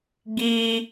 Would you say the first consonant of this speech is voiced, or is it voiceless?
voiced